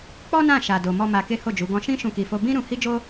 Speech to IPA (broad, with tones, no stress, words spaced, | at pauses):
k͡pɔ˦nã˦˨ ʃa˧do˧ mɔ˦ma˧ke˦ ho˦˨d͡ʒu˨˦ ɡɔ̃˧ʃĩ˦ ʃũ˦ki˧fo˦ bĩ˦ɾũ˧ hi˦d͡ʒo˦